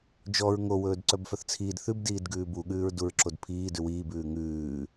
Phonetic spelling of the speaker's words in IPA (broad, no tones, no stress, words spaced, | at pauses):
d͡ʒɔɹ ŋo wɵːdǀœbfœθt͡sʰiːd θʉb diːdɡʉːbu ɠʉːɹduɹǁodpʰiː dʉwiːb ʉːŋʉː